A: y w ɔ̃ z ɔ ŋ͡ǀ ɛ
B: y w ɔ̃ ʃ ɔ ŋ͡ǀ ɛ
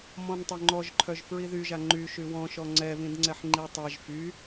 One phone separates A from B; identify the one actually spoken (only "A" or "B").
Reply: B